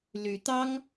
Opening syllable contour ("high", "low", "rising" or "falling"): rising